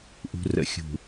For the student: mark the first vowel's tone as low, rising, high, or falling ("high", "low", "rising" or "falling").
low